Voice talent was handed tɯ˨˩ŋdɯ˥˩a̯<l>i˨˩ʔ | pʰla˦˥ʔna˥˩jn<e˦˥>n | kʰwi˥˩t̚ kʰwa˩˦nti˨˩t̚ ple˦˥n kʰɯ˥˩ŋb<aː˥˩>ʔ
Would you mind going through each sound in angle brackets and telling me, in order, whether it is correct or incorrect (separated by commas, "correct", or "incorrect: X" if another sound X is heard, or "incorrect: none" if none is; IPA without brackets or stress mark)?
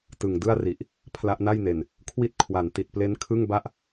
incorrect: r, incorrect: e˨˩, incorrect: a˥˩